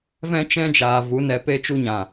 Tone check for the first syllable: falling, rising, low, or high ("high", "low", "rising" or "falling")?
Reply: high